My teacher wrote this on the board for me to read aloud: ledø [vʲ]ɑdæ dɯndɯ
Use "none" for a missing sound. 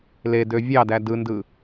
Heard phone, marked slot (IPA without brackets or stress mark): vʲ